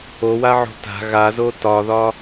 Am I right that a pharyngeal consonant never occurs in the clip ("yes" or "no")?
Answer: no